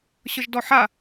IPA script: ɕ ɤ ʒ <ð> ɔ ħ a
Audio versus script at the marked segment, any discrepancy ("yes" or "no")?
yes